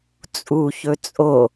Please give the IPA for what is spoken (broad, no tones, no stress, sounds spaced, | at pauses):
t͡sʼ u ç ɵ t͡sʼ o